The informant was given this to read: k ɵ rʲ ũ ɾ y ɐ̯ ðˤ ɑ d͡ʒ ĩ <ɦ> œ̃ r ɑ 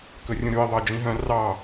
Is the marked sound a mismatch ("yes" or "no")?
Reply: no